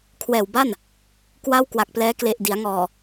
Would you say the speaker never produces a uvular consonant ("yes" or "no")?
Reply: yes